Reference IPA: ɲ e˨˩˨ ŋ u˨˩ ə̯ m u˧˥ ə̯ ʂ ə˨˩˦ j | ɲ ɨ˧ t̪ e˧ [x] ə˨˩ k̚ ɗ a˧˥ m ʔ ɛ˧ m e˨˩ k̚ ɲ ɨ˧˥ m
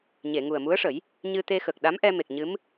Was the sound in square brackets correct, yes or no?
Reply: yes